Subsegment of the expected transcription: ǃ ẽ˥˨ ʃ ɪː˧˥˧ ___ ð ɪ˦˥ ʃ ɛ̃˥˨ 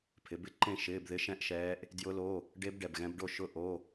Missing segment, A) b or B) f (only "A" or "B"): A